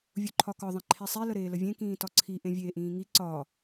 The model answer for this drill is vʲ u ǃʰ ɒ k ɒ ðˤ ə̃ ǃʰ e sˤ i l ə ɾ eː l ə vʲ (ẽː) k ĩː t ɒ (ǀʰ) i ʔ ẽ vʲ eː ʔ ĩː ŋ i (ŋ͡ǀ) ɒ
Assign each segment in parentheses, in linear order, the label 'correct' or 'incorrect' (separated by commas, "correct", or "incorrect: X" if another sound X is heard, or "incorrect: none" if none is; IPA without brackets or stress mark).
incorrect: ẽ, correct, incorrect: ǀ